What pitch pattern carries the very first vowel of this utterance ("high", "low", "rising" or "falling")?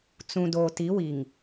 low